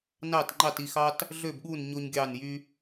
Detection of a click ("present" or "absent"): present